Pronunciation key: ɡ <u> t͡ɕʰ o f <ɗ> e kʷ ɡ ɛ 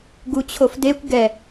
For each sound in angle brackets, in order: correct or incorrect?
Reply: correct, incorrect

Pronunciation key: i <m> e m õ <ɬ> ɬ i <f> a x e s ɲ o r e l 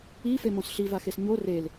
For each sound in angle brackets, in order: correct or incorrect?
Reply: incorrect, incorrect, incorrect

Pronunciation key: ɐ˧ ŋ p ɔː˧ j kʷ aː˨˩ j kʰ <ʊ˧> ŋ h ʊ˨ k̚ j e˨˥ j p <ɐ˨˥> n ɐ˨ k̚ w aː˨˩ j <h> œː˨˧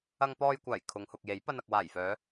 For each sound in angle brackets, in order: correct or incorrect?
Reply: incorrect, incorrect, incorrect

